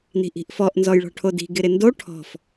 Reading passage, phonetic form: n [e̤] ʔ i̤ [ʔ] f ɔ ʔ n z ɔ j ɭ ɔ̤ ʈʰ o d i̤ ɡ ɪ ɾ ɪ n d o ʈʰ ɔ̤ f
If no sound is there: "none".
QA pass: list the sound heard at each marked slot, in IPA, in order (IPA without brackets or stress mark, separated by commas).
i̤, ʔ